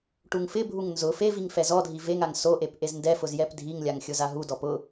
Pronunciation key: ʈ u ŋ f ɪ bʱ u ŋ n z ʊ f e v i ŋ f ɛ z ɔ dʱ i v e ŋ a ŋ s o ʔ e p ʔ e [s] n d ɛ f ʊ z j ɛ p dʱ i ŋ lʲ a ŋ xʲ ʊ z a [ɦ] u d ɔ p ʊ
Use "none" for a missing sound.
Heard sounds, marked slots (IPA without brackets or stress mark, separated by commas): z, ɦ